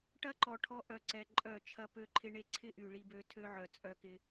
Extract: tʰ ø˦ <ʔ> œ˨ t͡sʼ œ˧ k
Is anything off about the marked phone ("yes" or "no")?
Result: yes